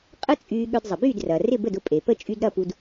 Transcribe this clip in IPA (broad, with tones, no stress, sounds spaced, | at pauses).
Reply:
qʼ ə˥ t͡sʼ yː˧ ɠ œ˧ d zˤ ə˩ b yː˥˩ d r ɐː˩ r ɪ˥˩ b ə˥˩ d ʊ˥˩ pʼ e˩ p ə˥˩ t͡ʃʼ y˧ d ɾ ɐ˥˩ p u˧ d